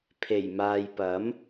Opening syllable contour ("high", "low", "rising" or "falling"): low